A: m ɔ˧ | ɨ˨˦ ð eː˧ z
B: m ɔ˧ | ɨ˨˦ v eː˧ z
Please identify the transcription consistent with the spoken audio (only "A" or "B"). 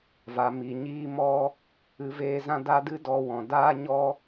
B